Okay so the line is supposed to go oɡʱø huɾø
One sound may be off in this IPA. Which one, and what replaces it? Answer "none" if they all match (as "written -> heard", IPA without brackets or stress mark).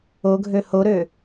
u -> o